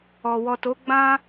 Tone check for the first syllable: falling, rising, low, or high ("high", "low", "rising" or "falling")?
low